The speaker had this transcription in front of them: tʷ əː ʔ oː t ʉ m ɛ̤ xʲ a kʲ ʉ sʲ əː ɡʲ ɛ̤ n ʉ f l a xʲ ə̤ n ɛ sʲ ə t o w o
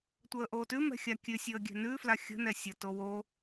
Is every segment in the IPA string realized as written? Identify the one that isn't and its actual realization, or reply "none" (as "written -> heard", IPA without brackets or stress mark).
none